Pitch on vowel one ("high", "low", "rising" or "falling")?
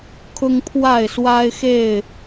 high